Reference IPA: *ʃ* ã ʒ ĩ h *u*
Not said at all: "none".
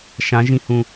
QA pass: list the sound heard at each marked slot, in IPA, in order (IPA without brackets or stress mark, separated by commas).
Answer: ʃ, ũ